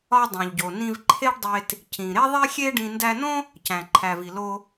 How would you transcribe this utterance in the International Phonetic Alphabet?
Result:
ɒ˧ dˤ õ˩ ʎ ɟ o˩ n ĩ˧ v ǃʰ e˥ ɖ dˤ e˧ t | c ĩ˩ ɾ e˥ ðˤ e˥ xʲ e˥ ɖ ĩ˧ n d æ˧ n õ˥ | c æ̃˩ ǃʰ æ˩ v i˩ l o˧

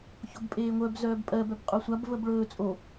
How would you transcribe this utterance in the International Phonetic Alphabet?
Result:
ç o b pʼ eː ŋʷ œ b z œː b pʼ ɜ b œ b qʼ o sʷ a b v ə b ɭ ɵː t͡sʼ o

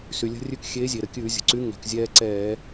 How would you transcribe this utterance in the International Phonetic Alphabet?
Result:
s y˩ lʲ ə̤˧ rʲ ʉ˧ k xʲ eː˨˥ zʲ e˩ ɾ ə˩ kʲ ʉː˧˩˧ zʲ ə̤˩ ǀ y˨˥ ŋ ɛ̤˩ k zʲ ɛː˧ ǀ ɛː˧˩˧

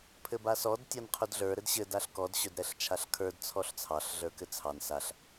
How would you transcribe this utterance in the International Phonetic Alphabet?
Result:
pʰ ɘ b a s ɔ d tʲ ɑ n qʰ ɵ d ɮ ə˞ ɾ ɘ d ɕ ɘ d a ɬ k ɔ d ɕ ɵ d ɾ ɛ ɬ t͡ʃʰ a ɬ kʰ ə˞ d t͡sʰ ɔ ɬ t͡sʰ ɑ ɬ ɮ ə˞ k ɘ t͡sʰ ɑ n s a ɬ

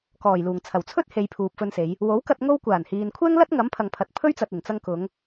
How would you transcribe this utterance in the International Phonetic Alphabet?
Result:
k ɔː˨˩ j l uː˨˩ ŋ t͡sʰ ɐ˨˩ w t͡sʰ ɵ˥ t̚ h e˨˧ j pʰ uː˨ p̚ f ɵ˧ n s e˨˧ j | w o˨˥ w k ɐ˧ t̚ ŋ o˧ w kʷ aː˨˩ n h iː˨ n kʷʰ ɛː˥ ŋ l ɐ˥ t̚ ŋ ɐ˨˥ m pʰ ɐ˨ ŋ pʰ ɐ˨ t̚ pʰ ɵ˥ ɥ t͡s ɐ˨ t̚ ɪ˨˩ ŋ t͡s ɐ˧ ŋ k ʊ˨˧ ŋ

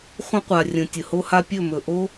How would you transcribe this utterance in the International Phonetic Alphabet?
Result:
χʷ ə̃˦ qʷ a˨ rʲ ə̃˨ tʲ ə˨ h o˦ h a˦ pʲ ɵ˦˨ m ɵ˨ ʔ o˦

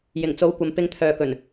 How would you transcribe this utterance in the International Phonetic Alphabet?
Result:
j ɪ˨˩ ŋ t͡s o˨˧ w kʷ ɐ˨ m p ɪ˧ ŋ t̪ʰ œː˨ k ɵ˨˩ n

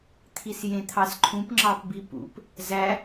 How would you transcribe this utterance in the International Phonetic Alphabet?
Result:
t̪ʰ i s j ẽ t̪ʰ ɑ s ǃʰ ũ p ŋ͡ǁ ɑ p b i p ṵ p | z æ

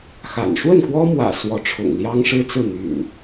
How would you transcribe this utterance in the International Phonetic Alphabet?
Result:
x a̰˨˩ n ʂ w ə˥˨ n k w ɔ˦ m w ä̰˨˩ s w ɔ˨˦ ʈ͡ʂʰ ʊ̰˨˩ ŋ l j ɑ˦ ŋ ʂ ɻ̩˦ t͡s ɹ̩˥˨ n̪ y̰˨˩ n

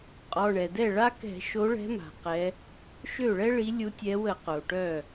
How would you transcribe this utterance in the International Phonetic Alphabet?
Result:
qʼ ɔ˩˧˩ ɳ ɛ˩ d ɛ˥˩ ɭ a˥ k ɛ̤˧˩˧ ʃ o˨˦ ɭ ɛ̤˨˦ m a̤˩ q ɛ˨˦ | ʃ ø˥˩ ɭ ɛ˥ ɭ i˨˦ lʲ u˨˦ tʲ ɛ˨˦ w ə˧˩˧ q o˩ ʈ œ˥˩

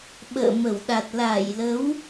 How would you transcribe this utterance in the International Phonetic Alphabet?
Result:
ɓ ə̰ː˧˨ m ə˧˩ w ɗ a˨˩ t̚ l a˧˩ j l ə˨˦ w

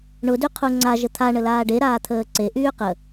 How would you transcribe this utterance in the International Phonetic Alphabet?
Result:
ɳ ʊ d y qʰ u ŋ͡ǀ a ʒ ə t̪ʰ a ɳ ə l aː ɖ e ɾ aː t̪ʰ əː ǀ e ʔ yː q ə

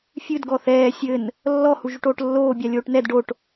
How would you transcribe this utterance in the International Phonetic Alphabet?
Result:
fʲ ɨ d ɡ ɔ θ ɛː sʲ ɘ n | lː ɔ h u ʒ u ʈ oː ʈ lː oː bʲ a lʲ oː ʈ n ɛ d ɖ o ʈ

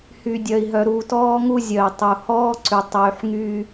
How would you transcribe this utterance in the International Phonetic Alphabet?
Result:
h y˨ dʲ œ˨ i̯ ɦ œ˨ ɾ u˨ t ɔː˦ ŋ u˦ zʲ œ˨ i̯ tˤ u˨ h ɔː˦ ǀ y˨ tˤ yː˨ ħ ŋ yː˦

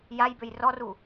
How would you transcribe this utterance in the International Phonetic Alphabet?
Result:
j a j b ø j r ɔ r u

